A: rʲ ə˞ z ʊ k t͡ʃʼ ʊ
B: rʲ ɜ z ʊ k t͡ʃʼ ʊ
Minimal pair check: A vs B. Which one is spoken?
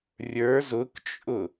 A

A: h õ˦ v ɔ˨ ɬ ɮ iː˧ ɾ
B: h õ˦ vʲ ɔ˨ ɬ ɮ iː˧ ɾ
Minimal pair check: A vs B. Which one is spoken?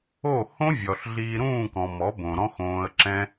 B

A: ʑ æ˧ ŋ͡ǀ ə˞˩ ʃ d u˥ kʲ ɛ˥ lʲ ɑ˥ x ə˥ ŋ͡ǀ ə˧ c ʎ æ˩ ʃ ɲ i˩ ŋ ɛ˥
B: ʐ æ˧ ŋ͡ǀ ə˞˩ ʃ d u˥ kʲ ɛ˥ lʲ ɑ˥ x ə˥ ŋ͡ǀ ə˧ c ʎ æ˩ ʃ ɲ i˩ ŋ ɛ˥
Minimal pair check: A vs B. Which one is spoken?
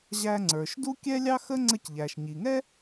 A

